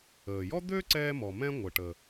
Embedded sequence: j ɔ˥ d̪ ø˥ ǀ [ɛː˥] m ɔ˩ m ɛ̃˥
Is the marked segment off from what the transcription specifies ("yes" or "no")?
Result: no